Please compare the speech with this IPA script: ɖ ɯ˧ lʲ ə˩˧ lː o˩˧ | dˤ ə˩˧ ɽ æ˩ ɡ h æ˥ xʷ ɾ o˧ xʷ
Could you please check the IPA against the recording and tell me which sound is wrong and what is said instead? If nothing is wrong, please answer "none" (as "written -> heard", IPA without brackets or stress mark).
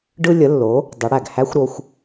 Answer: none